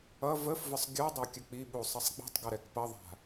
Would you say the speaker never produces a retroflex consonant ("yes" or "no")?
yes